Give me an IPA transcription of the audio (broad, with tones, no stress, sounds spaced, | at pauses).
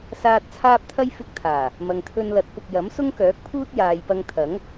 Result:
s aː˧ t̚ t͡sʰ aː˥ p̚ t̪ʰ ɐ˥ j f ɪ˧ k̚ t̪ʰ aː˨˩ | m ɐ˨ ŋ t̪ʰ ɵ˧ n l ɐ˨˥ t̚ p ʊ˨ k̚ j ɐ˨˥ m s ʊ˥ ŋ k œː˨˥ k̚ pʰ uː˥ t̚ j aː˨ j p ɐ˧ ŋ t̪ʰ ɐ˨˥ ŋ